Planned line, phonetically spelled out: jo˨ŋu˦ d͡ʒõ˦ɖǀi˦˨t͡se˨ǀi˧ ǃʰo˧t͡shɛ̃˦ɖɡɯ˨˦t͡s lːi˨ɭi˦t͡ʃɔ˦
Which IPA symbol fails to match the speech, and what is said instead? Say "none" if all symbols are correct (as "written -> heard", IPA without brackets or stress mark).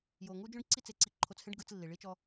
none